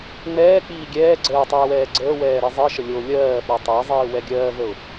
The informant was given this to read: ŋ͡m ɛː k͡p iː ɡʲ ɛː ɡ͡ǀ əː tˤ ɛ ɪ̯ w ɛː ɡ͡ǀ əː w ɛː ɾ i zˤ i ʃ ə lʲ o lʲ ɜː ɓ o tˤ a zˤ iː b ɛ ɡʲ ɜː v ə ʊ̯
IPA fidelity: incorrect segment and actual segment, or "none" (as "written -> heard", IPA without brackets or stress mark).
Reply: b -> w